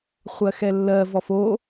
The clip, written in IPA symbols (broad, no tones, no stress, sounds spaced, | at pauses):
χʷ ɜ x ɛ lː ɜ v ɔ f o